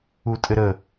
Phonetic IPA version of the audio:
utʼɘɾə

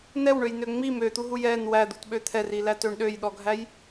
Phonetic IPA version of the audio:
nɛwɳøjnø ŋ͡mi møt̪uɦuj ɛn wæd̪utɓø t̪ʰɛrilætøɳ ɗøjɗɔɡʱæj

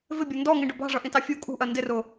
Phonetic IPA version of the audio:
vɪbʲʌ ndɔŋĩɖʊ bɑ̤ʐʌʔĩtɑ fʲu kʼṳʔɜ ndɪrʊ

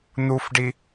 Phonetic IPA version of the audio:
n̪ufɖi

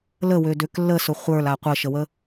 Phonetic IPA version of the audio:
ləwødøk lːəsʊ χʷə˞la qʷəʃəwə

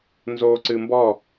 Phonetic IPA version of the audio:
nzoǀɨ mbɔ

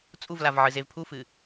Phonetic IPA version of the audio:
t͡sʼuvlavʕɨ zevpʰufɨ

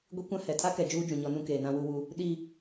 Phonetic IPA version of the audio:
ɡʷi˦kʷã˦hɛ˨ tʰa˦kɛ˨ d͡ʒuː˦ d͡ʒũ˨ɲɔ˦nũ˦ keː˨nã˦wu˦wu˦ | ɗi˦

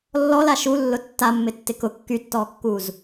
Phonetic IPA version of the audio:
lːɔla ʃulːʊ tːamːɪtːɪ kʊ kːytːɔːkːuːz

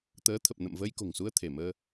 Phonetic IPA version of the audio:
t̪əː˨˦t̪ʰə˨˩p̚ nə̰˧˨mvəː˧jko̤˨˩ŋsu˧ə̯ t̪ʰe˧˩məː˧

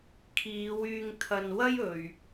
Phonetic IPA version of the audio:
kʰiː˨˧w yː˧ŋ t̪ʰɐ˧nwɐ˥j ɵ˨ɥ

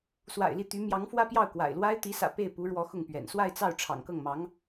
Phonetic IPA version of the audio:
swa̰˨˩ɪ̯li˥˩t̪y˧˥ mjɑ˧˥ŋfwä˥pjɑ˥˩ʊ̯ kwa̰˨˩ɪ̯lwa˥ɪ̯ t̪i˧˥sä̰˨˩ pe˥˩ɪ̯ pu˧˥ɻwɔ˧˥xʊ˥˩ŋpɥɛ̰˨˩n swa˥˧ɪ̯t͡sɑ˥˩ʊ̯ ʈ͡ʂʰɑ̰˨˩ŋkɤ˥˩ŋmɑ˧˥ŋ

